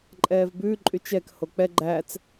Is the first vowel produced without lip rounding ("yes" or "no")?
yes